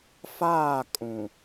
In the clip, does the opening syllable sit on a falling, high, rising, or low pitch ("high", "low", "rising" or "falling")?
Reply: falling